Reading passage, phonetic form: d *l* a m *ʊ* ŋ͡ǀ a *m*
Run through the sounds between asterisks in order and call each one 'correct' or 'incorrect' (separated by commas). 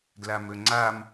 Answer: correct, incorrect, correct